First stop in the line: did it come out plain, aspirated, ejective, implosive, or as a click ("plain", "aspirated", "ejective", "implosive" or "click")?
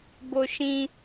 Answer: plain